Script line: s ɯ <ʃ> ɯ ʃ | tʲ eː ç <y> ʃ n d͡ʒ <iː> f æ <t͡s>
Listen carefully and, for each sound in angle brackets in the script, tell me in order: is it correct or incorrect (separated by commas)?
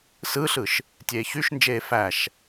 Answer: incorrect, correct, incorrect, incorrect